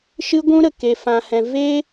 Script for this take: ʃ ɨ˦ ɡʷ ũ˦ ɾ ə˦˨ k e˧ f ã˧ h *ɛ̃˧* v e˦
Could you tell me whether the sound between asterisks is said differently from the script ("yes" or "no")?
no